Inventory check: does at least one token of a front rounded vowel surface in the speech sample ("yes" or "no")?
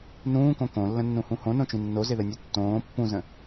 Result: no